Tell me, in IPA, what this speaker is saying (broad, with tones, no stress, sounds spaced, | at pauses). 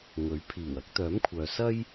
ŋ ɵ˨˥ ɥ pʰ iː˨˩ w ɐ˥ k̚ t̪ œː˨˥ m kʷʰ œː˨ s ɐ˥ j